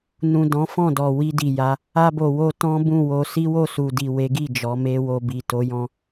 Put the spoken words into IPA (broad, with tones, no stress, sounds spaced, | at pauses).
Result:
n ũ˨ d ɔ̃˨˦ f ɔ̃˦˨ d ɔ˨ w i˧ d i˨ j a˨˦ | a˧ b o˨ w o˧ t ɔ̃˦ b ũ˦˨ w o˧ s i˦ w o˦˨ s u˨ d i˨ w e˨˦ ɡ i˦˨ d͡ʒ ɔ˨˦ m e˦ w o˧ b i˨ t o˨˦ j ɔ̃˧